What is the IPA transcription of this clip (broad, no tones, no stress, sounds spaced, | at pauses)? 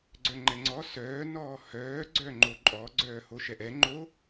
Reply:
ɡ͡ǀ œ ŋ͡ǃ ɛ ŋ͡ǀ ɔ s œː n ɔː h œː ɡ͡ǀ œ ŋ͡ǃ o ǃʼ ɔ ɡ͡ǀ œː h o ʃ ɛ ʔ ɛ ŋ͡ǃ o